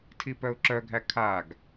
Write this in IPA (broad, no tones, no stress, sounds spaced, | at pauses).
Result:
tʰ i p œ ʊ̯ ǁ œ ɡʱ æ kʰ a ɡ